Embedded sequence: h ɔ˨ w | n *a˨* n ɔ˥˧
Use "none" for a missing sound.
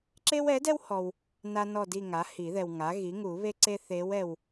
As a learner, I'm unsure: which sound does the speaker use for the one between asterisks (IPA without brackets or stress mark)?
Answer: a˥